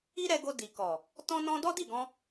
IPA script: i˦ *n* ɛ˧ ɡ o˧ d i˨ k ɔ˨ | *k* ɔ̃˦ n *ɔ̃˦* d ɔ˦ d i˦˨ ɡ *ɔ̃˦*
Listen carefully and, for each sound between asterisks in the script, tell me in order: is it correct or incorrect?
incorrect, incorrect, correct, incorrect

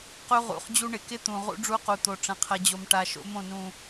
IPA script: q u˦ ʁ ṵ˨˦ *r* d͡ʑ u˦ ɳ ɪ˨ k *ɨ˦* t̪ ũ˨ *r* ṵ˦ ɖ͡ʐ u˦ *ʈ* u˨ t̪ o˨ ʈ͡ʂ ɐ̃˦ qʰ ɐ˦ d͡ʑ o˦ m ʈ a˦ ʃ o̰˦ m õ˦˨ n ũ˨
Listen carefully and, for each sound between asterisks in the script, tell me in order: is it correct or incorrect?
incorrect, incorrect, incorrect, incorrect

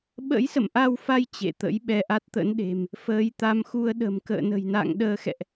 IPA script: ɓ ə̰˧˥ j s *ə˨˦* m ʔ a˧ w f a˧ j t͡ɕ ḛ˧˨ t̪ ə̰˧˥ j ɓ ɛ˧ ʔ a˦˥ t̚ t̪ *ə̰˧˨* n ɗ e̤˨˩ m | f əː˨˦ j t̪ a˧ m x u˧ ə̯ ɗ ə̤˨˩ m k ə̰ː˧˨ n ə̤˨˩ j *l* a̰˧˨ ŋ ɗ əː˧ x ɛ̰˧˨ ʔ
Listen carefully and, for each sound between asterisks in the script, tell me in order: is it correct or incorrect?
incorrect, incorrect, incorrect

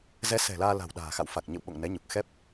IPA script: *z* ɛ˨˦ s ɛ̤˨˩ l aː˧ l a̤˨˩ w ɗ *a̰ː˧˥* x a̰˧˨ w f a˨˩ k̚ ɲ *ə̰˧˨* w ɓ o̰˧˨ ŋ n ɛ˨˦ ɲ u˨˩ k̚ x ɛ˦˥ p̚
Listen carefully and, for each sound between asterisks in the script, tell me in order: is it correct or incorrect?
correct, incorrect, correct

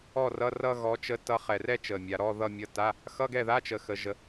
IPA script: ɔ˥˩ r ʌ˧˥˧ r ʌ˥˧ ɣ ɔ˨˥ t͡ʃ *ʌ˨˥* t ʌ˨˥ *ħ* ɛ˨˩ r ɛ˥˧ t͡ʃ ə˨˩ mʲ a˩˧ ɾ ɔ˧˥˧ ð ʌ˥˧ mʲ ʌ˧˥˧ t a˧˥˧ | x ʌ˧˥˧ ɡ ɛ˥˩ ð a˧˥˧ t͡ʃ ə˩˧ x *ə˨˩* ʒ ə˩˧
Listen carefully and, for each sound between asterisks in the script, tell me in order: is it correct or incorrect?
incorrect, incorrect, incorrect

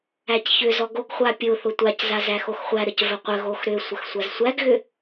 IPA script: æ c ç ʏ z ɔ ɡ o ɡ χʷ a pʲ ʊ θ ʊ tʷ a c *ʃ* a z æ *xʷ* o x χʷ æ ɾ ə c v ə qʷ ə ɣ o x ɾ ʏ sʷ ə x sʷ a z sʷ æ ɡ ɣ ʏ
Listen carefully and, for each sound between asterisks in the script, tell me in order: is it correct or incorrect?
incorrect, incorrect

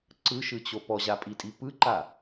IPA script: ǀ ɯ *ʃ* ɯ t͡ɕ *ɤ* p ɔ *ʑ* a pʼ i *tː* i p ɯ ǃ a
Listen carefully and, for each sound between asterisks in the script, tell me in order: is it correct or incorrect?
correct, incorrect, correct, incorrect

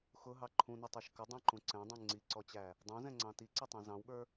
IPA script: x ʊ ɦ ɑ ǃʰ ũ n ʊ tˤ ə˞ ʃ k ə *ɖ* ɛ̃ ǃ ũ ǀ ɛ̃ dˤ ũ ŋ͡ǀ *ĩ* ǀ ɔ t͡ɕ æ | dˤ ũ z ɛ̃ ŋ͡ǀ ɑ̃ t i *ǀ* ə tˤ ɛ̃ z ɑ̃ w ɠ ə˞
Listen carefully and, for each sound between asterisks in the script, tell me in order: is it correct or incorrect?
incorrect, incorrect, correct

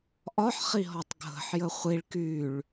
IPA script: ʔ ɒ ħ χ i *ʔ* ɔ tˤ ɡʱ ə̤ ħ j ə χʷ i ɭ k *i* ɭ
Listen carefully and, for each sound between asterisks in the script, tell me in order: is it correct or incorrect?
incorrect, incorrect

